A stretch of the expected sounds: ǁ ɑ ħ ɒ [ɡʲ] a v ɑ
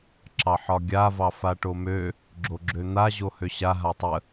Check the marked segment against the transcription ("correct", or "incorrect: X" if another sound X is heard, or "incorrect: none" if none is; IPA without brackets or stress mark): correct